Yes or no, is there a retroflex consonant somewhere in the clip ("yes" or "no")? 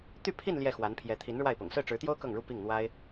yes